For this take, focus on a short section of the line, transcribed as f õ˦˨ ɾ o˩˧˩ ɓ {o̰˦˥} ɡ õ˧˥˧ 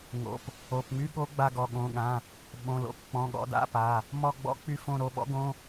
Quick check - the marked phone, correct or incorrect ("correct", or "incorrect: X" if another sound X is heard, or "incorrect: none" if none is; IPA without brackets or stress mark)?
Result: incorrect: ɔ̰˦˥